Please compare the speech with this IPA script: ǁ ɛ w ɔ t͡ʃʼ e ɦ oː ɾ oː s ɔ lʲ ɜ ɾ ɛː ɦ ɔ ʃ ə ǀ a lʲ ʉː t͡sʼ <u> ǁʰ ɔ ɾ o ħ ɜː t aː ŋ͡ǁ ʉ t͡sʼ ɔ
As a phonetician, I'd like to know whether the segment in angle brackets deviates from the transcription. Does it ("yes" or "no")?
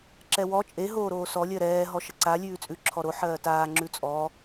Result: yes